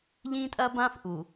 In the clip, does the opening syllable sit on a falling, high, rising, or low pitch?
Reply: high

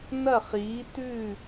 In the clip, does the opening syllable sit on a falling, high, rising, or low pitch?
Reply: falling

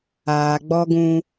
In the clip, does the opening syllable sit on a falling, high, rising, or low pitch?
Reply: low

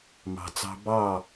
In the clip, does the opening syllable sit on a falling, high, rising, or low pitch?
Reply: low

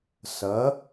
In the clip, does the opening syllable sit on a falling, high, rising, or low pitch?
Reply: rising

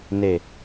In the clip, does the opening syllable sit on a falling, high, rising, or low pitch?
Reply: low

